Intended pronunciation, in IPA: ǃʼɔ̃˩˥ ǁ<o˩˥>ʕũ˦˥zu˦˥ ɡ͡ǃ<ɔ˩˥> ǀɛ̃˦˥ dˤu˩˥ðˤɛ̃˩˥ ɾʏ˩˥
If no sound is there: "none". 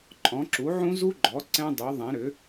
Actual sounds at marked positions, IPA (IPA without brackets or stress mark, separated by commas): u˩˥, ɔ˩˥